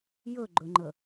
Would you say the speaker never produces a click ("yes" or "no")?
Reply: no